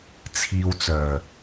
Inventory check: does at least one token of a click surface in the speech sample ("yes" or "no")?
no